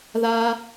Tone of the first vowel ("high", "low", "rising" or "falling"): high